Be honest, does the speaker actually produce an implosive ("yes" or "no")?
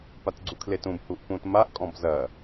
no